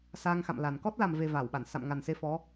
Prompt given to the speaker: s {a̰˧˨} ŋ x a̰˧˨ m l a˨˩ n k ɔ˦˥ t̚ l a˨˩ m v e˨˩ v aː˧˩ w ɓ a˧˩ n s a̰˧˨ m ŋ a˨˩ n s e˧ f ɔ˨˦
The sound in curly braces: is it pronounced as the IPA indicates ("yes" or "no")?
no